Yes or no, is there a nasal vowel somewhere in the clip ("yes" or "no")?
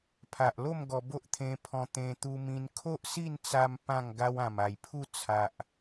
yes